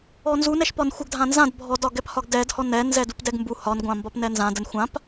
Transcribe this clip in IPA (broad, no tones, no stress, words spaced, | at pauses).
ɔnzunɛʃpɒn xʷəɡdʱã nzãd bʱɔdɒ ɡɛphɒɡdɛdhɔn ɛnzɛ dupdɛɡmbu hɒnɡʷãmbɒp nɛnzã dənxʷãp